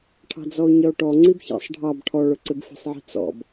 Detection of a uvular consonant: absent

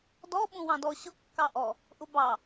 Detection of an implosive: present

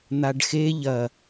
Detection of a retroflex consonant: present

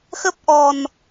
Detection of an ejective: absent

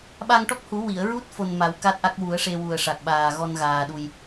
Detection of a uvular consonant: absent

